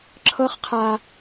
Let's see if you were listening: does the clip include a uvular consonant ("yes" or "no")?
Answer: yes